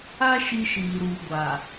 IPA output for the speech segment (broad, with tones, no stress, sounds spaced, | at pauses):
a˦ ʃ i˦ ʃ iː˨ ɾ uː˨ ɡʷ a˨